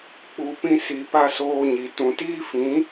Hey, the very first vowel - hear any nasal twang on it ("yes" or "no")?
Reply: no